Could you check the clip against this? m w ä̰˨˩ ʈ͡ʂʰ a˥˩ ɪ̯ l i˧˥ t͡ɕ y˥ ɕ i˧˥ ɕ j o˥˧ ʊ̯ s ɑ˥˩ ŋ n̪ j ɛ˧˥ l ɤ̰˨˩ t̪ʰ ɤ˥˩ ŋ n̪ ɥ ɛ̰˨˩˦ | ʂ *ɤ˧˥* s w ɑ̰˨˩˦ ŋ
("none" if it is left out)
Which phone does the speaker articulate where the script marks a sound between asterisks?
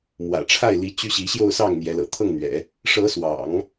ɤ˧˥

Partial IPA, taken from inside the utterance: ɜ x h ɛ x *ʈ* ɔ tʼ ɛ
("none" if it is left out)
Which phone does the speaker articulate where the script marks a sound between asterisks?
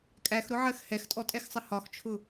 tʼ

